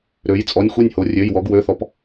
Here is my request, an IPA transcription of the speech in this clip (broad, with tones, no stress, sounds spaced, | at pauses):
ɾ ø˩˧ j t͡sʼ ɔ˩˧˩ nʲ xʷ e˥˩ nʲ h o˩˧ rʲ ø˩˧˩ j w ɔ˩˧ ɡ w ø˩˧˩ θ ɔ˩˧ p